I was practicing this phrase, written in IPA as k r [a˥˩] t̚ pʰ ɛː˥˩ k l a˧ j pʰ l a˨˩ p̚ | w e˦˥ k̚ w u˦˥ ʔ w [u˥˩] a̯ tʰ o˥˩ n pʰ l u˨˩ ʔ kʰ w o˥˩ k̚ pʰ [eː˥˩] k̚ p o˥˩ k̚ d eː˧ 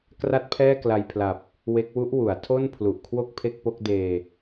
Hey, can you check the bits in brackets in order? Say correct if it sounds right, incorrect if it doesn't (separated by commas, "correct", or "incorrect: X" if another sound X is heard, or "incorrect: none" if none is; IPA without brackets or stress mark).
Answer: correct, incorrect: u˩˦, incorrect: e˥˩